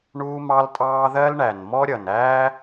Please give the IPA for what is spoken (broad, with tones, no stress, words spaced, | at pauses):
ɳuː˥mɑ˥ltʼɑː˥ ðɜ˥l ɳæ˨˩n mɔ˥ɾʲʌ˨˩næː˥